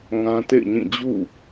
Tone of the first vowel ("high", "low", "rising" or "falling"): high